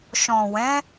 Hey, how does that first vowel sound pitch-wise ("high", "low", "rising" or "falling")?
low